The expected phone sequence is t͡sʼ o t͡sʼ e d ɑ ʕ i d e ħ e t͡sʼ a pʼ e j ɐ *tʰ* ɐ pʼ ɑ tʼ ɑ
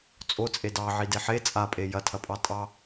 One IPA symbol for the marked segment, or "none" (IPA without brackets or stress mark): tʰ